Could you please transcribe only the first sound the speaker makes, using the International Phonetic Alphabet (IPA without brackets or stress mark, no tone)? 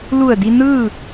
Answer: l